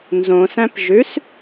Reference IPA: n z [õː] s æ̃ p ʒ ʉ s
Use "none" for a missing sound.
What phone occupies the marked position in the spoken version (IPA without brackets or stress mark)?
õ